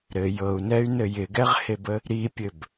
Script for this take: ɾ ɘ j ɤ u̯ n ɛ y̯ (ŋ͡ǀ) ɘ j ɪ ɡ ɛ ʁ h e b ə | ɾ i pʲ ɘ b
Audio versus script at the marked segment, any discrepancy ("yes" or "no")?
yes